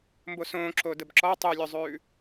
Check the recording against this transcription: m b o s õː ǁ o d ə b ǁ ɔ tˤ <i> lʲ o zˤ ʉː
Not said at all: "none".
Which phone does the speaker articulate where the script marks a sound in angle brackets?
y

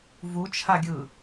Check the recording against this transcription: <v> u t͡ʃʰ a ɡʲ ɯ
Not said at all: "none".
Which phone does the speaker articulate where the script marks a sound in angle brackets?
v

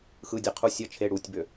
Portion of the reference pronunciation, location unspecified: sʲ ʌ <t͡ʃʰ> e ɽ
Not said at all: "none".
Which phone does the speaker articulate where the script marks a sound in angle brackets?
t͡ʃʰ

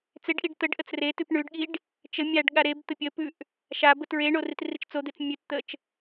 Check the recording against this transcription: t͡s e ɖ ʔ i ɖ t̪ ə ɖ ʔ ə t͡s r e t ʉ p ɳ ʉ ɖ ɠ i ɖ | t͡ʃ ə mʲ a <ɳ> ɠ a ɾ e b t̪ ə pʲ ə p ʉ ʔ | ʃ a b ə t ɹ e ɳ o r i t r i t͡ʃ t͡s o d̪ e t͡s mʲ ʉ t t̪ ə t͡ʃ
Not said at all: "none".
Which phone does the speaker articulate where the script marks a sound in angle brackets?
ɖ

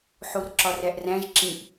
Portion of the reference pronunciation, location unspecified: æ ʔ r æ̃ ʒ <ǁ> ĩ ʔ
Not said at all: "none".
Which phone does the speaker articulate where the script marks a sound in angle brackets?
ǁ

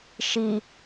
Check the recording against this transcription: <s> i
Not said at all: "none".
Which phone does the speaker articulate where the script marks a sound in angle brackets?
ʃ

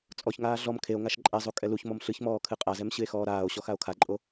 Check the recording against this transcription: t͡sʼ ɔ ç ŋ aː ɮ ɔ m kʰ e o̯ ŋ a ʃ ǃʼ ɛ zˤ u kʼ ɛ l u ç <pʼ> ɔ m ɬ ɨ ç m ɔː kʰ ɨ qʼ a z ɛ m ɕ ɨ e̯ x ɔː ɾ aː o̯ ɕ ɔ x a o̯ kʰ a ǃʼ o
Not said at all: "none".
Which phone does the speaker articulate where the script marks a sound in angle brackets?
m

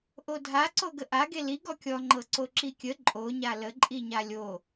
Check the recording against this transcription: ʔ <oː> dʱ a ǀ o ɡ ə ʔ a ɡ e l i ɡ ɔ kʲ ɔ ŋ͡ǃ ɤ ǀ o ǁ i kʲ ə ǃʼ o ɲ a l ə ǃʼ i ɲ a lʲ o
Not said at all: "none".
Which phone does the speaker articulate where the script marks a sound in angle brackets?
o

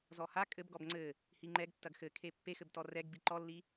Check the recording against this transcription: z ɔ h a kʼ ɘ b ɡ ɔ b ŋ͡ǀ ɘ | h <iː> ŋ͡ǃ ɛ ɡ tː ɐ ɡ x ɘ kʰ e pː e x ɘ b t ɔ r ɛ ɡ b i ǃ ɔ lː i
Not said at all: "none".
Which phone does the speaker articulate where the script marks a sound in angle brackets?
i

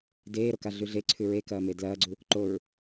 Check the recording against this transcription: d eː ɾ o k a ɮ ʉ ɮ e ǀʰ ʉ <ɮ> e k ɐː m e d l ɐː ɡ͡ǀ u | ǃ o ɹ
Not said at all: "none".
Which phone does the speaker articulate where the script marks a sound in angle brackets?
ɹ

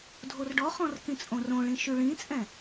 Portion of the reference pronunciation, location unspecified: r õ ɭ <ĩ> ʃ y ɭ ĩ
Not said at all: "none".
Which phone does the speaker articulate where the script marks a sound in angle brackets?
ĩ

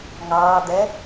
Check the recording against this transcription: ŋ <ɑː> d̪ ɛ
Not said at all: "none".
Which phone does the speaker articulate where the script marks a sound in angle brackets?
ɑː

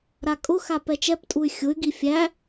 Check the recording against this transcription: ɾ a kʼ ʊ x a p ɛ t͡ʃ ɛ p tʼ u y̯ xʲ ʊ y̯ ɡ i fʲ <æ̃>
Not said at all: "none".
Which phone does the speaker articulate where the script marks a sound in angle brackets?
æ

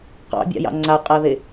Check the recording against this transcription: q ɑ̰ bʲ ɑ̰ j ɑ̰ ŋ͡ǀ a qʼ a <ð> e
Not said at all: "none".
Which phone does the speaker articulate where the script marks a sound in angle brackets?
ð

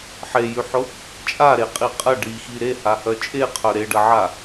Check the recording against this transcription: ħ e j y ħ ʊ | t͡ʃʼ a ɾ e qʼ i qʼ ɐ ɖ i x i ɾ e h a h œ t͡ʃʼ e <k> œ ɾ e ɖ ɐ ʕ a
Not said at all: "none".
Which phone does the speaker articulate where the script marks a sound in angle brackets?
qʰ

